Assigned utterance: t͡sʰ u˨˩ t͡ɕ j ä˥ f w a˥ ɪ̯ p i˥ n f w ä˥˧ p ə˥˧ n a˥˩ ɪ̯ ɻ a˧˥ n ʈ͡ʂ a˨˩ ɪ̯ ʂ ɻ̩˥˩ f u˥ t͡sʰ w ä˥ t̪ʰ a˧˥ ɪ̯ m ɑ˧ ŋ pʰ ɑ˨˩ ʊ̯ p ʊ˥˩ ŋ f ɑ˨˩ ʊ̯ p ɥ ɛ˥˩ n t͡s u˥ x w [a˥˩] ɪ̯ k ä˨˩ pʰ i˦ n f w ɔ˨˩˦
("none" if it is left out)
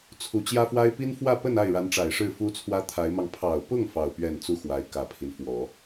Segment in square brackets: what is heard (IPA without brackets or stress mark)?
a˧˥